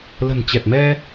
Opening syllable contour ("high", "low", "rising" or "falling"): low